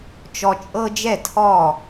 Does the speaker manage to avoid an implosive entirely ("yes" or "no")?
yes